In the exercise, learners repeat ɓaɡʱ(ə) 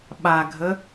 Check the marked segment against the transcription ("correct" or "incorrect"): correct